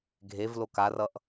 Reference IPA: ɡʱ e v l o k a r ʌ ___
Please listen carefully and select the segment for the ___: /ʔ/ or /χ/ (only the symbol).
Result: ʔ